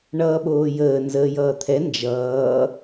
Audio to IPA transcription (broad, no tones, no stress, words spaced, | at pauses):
ɳʌːɓoːjəː nzəːjʌːt̪ʰɛ nd͡ʒʌː